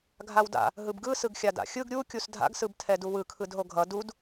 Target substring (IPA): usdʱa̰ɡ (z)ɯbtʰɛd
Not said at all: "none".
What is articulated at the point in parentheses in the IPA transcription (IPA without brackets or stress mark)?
s